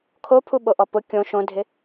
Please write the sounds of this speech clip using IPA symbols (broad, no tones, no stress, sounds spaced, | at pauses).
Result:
kʰ o pʰ u ɓ o ʔ ɔ p ʊ kʲ õ ʃ õ dʱ ɪ